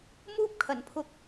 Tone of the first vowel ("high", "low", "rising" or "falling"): high